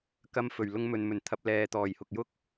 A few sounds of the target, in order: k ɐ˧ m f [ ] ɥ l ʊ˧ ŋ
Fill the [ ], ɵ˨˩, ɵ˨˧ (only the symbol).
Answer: ɵ˨˩